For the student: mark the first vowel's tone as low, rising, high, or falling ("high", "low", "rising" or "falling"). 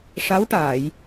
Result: rising